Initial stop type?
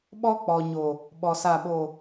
implosive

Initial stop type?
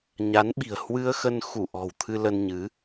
implosive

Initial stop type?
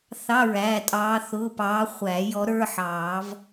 ejective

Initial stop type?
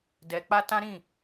plain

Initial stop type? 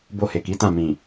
plain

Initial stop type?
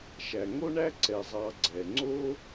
click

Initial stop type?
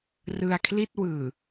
aspirated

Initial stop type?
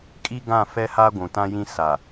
ejective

